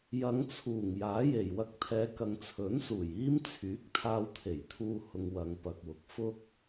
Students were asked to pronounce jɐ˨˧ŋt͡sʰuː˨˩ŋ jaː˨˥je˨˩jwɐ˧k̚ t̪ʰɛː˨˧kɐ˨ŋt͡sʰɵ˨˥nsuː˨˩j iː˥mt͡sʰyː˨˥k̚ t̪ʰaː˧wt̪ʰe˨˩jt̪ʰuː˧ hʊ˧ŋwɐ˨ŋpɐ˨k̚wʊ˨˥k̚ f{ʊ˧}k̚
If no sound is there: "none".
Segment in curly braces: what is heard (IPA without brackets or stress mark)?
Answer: ʊ˥